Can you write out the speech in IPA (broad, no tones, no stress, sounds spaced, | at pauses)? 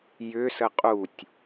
j ʏ s ə qʼ u tʲ